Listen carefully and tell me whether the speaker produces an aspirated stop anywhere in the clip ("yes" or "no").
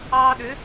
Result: no